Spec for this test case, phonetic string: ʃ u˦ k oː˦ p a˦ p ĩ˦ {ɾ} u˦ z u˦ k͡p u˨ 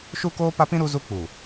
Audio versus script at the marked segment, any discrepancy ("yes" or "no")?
no